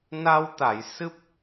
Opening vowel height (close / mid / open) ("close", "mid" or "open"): open